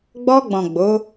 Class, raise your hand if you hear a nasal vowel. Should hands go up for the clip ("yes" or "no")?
yes